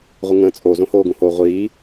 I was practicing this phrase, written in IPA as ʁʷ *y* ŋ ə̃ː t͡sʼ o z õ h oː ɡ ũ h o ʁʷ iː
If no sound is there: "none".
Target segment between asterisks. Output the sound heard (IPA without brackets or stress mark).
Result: ɨ